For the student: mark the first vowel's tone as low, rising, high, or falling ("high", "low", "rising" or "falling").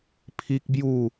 high